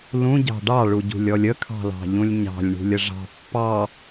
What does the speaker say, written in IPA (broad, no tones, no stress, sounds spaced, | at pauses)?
l ũ ɟ ɑ̤ ɖ ɑ ɭ u ɟ ṳ lʲ ɔ lʲ ə kʰ ɑ̤ l ɑ̤ ʎ ũ lʲ ɲ ɑ̤ lʲ ɳ ṳ lʲ ə ʐ ɑ̤ pː ɑ